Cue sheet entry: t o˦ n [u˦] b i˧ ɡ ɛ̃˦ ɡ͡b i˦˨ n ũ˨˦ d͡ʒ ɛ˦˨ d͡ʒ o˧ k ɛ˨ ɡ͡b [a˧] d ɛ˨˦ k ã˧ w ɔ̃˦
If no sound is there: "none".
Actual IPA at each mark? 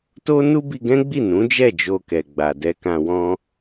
u˦, a˨

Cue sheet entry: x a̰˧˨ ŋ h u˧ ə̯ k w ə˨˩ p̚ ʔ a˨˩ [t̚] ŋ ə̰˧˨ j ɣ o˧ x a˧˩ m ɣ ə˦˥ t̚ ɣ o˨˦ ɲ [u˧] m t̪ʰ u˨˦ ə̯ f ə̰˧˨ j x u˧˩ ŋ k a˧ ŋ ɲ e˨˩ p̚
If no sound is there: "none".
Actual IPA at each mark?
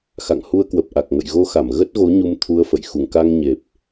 k̚, u˧

